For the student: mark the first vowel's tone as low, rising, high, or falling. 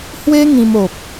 high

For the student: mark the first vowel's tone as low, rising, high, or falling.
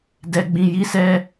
low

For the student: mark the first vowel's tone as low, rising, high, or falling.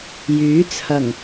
rising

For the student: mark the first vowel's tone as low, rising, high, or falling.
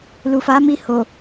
low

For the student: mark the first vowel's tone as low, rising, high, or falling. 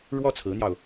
high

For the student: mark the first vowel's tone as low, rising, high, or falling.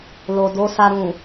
low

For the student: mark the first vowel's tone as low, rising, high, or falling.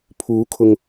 rising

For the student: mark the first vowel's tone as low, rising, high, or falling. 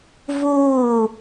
falling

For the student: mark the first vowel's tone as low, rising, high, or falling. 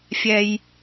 low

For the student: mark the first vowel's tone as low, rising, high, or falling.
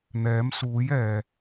rising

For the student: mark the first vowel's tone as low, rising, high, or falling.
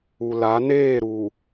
low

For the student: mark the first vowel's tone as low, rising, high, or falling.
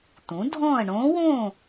rising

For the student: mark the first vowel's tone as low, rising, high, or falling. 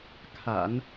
low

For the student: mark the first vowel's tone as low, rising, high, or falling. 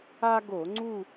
high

